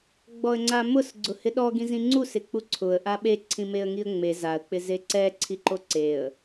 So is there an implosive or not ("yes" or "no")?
yes